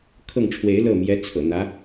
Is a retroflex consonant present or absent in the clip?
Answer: present